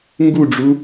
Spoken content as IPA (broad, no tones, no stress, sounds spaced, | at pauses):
ŋ ɡ u ɖ͡ʐ u